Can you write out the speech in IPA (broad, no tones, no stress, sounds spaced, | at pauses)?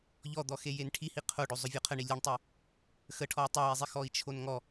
ʎ ɔ d̪ ɔ x e j e n ʈʰ i h i qʰ o ɖ o zˤ ʊ vʲ ɔ qʰ ə ɳ i lʲ ə ɳ tˤ e | x ə ʈʰ ɔ w tˤ o w ɛ zˤ i x ɔ i̯ t͡ʃʰ o n ŋ ɔ